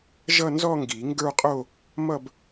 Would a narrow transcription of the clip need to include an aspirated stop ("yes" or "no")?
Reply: no